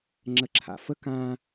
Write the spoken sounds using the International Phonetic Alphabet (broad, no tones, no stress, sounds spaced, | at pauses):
ŋ͡ǁ ə ǁʰ a̰ f ə k ã